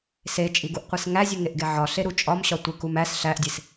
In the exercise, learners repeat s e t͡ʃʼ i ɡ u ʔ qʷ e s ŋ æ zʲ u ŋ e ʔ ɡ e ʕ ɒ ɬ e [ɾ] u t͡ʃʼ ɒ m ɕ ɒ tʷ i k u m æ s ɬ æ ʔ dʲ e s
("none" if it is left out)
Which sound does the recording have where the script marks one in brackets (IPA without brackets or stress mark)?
ɾ